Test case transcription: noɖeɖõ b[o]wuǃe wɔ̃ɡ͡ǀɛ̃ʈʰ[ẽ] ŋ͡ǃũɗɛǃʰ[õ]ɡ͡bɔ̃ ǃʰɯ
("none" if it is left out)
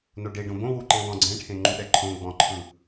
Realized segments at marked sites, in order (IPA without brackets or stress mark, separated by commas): õ, ẽ, õ